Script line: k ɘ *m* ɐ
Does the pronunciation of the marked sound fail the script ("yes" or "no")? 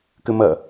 no